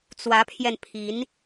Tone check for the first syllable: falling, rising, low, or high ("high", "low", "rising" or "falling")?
rising